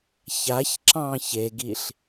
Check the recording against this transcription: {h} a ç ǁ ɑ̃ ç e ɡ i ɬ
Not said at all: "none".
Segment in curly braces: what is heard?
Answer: ç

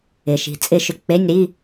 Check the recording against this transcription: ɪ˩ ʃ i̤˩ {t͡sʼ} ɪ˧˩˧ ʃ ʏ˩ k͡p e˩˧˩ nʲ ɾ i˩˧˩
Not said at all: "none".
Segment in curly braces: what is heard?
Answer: t͡sʼ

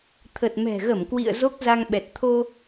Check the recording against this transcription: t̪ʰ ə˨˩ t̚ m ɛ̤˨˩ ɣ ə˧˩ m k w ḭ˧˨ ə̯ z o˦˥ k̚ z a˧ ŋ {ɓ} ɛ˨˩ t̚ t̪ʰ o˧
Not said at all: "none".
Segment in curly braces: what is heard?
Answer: ɓ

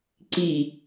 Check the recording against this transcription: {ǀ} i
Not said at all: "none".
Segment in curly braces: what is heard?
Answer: ǀ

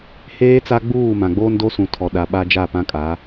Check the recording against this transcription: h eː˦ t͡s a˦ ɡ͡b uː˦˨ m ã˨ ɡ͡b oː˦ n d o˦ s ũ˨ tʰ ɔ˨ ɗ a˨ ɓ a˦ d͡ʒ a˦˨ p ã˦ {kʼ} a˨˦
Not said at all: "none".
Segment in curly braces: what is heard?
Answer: kʼ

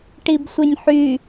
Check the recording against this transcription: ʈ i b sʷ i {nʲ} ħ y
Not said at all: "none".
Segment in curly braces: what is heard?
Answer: nʲ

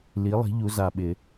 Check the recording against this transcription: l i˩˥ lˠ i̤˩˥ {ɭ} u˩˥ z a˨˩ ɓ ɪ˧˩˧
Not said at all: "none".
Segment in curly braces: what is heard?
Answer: ʎ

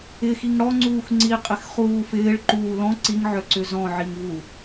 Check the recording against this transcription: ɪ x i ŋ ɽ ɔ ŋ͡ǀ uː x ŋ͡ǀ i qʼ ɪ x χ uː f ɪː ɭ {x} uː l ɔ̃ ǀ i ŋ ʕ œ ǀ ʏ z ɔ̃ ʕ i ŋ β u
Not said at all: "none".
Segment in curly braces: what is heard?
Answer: ǃ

